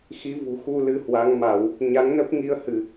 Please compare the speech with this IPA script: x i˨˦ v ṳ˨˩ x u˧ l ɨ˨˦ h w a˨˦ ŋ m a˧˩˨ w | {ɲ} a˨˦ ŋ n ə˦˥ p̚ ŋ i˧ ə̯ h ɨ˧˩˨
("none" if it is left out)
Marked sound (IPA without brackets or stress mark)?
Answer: ɲ